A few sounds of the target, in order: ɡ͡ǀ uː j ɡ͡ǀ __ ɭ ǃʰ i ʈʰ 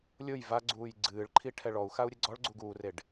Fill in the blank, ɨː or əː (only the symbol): ɨː